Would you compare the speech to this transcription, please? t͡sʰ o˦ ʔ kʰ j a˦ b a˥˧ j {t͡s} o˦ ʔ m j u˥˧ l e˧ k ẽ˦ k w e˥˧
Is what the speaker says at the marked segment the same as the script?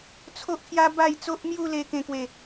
yes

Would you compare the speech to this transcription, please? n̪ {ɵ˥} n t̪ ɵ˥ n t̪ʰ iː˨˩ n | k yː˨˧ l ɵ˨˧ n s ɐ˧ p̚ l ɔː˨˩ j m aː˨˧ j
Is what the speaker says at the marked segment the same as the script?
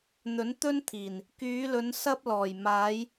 no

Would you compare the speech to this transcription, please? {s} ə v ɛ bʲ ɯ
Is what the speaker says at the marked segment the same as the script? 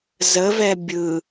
no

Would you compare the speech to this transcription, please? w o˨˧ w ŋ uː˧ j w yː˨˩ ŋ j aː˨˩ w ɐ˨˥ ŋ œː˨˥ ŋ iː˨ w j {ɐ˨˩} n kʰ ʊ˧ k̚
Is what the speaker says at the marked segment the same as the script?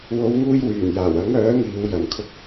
yes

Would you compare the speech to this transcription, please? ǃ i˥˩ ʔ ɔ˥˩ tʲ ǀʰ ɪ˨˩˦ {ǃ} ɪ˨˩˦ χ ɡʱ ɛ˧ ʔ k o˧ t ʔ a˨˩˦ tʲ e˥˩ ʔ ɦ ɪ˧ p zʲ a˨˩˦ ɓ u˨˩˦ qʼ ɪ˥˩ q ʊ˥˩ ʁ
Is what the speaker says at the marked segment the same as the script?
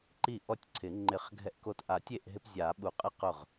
no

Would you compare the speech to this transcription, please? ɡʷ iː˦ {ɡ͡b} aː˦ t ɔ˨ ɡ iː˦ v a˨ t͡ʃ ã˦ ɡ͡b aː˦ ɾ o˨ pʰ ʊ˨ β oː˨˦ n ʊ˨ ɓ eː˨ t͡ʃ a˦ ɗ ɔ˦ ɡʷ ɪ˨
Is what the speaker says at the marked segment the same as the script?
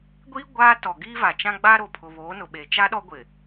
no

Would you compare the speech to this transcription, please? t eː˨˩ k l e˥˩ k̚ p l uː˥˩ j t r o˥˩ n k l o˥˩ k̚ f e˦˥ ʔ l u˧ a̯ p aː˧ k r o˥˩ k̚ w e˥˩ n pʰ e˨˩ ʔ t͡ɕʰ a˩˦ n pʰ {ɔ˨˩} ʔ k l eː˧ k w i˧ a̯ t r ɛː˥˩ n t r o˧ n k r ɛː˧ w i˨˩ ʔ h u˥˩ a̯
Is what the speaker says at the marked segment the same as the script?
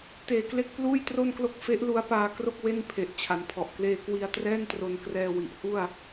yes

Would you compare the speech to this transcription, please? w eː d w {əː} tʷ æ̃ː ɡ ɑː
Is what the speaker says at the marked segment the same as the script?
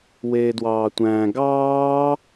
no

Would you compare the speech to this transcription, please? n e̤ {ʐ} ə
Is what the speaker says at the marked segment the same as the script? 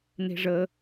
yes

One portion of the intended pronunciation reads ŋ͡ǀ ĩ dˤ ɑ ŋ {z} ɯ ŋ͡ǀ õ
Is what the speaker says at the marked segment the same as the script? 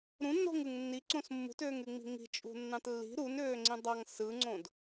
no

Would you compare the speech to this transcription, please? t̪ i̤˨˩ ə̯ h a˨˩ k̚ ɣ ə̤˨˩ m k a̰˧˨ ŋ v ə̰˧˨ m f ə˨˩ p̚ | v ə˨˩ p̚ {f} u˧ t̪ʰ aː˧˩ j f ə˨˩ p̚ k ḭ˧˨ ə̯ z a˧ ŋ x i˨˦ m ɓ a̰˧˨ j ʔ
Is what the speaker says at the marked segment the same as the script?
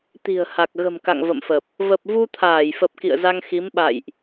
no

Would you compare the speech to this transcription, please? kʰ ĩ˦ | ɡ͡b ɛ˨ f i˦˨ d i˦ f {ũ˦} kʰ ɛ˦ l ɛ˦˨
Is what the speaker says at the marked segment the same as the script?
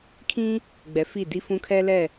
yes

